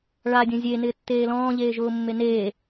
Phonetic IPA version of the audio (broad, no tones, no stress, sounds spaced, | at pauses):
ɭ a dʲ õ zʲ e n ɪː tː eː l ɔ̃ː ʎ eː ʒ ʊː mː e n eː